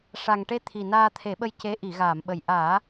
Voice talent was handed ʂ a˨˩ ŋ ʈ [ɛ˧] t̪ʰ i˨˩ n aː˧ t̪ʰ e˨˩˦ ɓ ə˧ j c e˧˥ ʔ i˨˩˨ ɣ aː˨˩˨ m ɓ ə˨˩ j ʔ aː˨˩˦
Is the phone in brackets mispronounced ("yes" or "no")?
yes